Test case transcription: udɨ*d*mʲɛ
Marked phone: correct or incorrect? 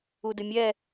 incorrect